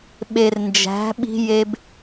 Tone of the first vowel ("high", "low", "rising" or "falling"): low